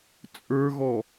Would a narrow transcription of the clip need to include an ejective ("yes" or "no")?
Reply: yes